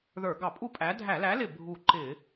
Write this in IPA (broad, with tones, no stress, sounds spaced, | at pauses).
ð ə˞˧˩˧ ɡ ɑ˧˩˧ pʼ u˥˨ pʼ æ˨˥ dʱ æ˧˩˧ l æ˨˥ l ɪ˧˩ bʱ u˧˩ ǃ ɪ˧˩˧